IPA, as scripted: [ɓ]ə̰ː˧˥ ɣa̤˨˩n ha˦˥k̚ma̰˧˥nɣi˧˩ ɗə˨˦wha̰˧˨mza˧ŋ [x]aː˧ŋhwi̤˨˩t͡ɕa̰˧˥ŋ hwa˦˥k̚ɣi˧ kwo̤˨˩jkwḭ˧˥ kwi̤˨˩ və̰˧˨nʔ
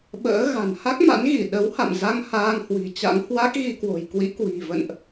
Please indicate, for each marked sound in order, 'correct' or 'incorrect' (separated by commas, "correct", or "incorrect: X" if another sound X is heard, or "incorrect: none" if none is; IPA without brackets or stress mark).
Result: correct, incorrect: h